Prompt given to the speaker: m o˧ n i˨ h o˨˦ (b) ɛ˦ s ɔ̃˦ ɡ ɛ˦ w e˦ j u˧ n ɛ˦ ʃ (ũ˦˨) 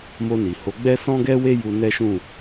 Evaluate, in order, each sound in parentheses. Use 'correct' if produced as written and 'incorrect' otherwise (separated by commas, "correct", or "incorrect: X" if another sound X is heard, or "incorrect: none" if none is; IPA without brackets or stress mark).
incorrect: ɡ͡b, correct